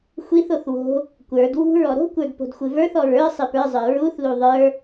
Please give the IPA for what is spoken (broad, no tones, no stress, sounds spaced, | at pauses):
xʷ i θ o θ w o̤ | kʷ ə˞ d w ṳ ɹ ɔ ɾ o̤ kʷ ə˞ d p o̤ d xʷ ɨ v ə˞ θ ɔ ɹ ə˞ sˤ ɨ p ə˞ zˤ ə˞ ɹ u θ l u ðˤ ə˞